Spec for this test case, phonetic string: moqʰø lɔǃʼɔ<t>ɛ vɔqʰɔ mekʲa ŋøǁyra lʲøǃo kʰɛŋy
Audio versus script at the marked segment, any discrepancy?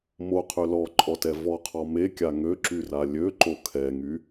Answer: no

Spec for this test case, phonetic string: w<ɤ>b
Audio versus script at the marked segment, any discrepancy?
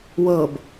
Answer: no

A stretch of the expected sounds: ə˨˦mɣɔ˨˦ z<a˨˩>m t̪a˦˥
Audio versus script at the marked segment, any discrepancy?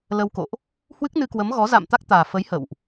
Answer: yes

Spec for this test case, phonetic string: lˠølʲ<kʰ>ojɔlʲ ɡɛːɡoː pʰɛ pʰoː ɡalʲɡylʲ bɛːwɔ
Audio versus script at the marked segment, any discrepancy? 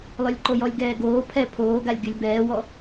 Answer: yes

